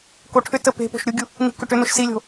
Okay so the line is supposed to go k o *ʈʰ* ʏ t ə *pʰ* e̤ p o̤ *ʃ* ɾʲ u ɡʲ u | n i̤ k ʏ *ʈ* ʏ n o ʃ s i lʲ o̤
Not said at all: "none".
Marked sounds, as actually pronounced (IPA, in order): ʈʰ, p, ʃ, ʈ

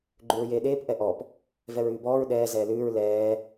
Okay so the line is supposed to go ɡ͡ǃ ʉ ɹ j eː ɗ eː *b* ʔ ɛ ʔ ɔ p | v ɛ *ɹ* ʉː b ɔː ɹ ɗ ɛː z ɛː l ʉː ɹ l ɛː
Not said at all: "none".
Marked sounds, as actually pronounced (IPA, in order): p, ɹ

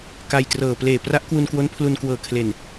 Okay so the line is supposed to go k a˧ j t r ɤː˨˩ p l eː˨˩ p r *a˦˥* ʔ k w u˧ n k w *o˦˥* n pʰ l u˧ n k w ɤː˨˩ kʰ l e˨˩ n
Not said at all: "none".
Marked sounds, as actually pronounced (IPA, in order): a˦˥, o˦˥

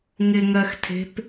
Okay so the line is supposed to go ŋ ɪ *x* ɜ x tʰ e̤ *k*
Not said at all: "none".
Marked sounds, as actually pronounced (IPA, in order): ŋ, p

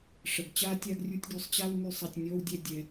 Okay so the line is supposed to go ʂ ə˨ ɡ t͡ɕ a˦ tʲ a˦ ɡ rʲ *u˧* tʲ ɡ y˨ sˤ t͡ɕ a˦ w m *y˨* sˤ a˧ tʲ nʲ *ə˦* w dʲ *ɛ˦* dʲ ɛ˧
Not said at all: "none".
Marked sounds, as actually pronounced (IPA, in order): u˧, y˧, ɔ˦, ɛ˦

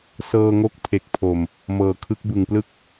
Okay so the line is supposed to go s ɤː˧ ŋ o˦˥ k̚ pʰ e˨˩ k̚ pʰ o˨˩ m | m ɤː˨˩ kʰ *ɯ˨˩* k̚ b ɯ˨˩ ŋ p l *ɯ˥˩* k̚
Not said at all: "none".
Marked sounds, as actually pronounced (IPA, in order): ɯ˦˥, ɯ˦˥

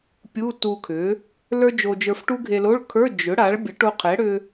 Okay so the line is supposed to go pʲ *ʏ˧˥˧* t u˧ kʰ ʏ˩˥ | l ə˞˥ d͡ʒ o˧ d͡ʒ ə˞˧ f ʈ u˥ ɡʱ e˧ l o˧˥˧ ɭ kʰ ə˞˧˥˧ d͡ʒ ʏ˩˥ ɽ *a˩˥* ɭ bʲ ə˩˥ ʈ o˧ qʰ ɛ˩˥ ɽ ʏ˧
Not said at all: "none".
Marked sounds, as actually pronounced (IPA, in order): u˧˥˧, a˩˥

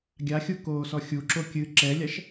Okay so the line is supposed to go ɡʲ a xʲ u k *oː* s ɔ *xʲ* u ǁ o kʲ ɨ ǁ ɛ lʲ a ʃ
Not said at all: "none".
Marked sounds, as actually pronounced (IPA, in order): oː, xʲ

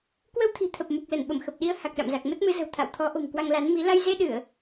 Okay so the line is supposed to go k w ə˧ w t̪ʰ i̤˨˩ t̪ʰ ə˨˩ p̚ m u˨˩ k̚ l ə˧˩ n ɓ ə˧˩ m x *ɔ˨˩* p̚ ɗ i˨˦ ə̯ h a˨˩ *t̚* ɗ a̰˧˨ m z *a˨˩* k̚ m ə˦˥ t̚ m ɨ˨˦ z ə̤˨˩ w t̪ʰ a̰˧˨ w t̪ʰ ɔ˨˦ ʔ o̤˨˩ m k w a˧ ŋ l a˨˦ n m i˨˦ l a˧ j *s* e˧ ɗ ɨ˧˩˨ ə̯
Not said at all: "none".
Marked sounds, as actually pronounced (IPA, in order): ə˨˩, k̚, a˨˩, z

